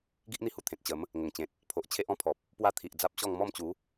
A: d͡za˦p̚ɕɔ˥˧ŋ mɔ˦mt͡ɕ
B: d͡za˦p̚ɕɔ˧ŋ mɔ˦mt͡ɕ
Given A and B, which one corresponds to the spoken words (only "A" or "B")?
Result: A